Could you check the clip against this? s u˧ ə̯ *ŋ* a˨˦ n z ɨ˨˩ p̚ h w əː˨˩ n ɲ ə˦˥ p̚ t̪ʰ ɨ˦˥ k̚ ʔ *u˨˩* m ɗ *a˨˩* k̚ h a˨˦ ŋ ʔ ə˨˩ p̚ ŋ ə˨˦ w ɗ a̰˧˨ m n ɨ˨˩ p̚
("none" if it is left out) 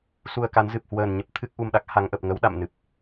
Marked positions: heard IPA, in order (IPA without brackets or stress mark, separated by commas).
k, u˧, a˦˥